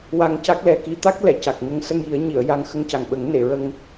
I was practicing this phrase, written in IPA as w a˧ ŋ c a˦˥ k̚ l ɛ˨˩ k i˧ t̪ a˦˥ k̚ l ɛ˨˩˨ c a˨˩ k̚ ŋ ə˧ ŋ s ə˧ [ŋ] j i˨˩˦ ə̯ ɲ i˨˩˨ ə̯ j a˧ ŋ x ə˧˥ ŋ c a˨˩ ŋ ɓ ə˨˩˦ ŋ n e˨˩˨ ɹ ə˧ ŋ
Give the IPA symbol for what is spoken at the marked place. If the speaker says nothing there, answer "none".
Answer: ŋ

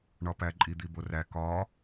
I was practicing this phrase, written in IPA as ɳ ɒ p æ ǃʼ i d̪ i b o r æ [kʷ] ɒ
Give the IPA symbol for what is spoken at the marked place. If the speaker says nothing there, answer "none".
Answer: k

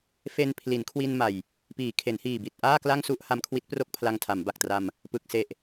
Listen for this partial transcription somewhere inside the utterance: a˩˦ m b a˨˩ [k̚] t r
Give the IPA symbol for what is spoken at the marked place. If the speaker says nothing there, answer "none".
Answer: k̚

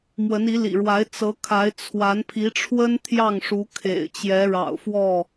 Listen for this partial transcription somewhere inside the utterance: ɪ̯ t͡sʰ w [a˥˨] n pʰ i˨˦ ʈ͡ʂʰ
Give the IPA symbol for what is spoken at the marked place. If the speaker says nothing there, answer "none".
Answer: a˨˦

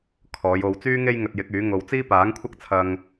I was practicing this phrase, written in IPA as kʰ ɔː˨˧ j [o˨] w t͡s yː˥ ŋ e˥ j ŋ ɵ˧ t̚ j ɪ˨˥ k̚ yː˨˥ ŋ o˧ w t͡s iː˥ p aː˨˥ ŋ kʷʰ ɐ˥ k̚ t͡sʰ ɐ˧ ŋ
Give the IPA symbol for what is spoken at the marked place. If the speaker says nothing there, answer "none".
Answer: o˧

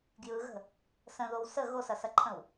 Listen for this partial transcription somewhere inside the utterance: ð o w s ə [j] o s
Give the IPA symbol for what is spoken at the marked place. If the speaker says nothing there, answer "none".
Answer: ɣ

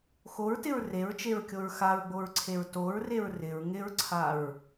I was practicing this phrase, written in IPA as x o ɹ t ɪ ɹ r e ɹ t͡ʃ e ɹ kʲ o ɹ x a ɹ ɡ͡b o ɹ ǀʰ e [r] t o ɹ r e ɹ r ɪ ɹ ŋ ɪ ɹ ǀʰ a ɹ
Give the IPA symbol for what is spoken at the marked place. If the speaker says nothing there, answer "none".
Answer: ɹ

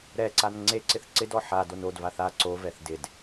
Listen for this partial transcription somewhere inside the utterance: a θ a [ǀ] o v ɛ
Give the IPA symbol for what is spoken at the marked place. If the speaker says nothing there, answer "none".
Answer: ǀ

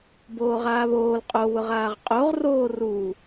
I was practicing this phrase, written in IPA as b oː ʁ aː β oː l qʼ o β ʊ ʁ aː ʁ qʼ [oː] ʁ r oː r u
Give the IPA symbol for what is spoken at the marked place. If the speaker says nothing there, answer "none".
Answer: o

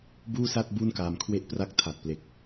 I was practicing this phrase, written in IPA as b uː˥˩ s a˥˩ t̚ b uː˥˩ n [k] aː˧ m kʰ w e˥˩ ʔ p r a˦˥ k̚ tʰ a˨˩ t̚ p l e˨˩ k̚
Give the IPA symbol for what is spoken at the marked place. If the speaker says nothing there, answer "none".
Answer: k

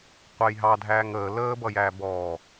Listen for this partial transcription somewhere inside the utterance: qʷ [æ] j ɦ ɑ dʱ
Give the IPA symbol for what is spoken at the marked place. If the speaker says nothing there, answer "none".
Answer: æ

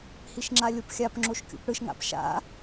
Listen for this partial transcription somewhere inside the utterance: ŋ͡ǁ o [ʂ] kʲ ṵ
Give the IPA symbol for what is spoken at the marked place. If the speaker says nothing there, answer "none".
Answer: ʃ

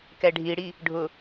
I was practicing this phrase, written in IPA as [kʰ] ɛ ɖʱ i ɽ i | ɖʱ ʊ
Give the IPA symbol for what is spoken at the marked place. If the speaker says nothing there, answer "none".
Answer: k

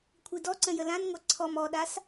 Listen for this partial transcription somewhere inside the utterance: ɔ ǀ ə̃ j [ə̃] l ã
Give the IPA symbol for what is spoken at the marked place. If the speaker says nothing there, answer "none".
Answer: ə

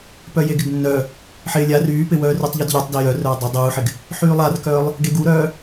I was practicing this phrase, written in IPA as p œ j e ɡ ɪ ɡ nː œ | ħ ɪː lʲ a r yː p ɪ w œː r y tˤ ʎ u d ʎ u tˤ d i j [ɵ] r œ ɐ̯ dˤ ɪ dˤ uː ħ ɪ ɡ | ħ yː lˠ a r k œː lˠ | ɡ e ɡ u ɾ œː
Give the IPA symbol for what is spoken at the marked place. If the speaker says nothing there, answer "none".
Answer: œ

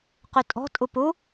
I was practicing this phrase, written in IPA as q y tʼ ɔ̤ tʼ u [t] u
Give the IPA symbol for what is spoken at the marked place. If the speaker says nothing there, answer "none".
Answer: p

